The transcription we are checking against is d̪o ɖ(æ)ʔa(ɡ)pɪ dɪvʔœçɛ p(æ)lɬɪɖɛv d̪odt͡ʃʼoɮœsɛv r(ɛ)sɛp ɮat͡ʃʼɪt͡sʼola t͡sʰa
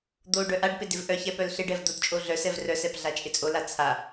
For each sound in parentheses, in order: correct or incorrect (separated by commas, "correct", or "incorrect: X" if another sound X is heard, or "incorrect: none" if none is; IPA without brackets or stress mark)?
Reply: incorrect: œ, incorrect: ɖ, incorrect: œ, incorrect: œ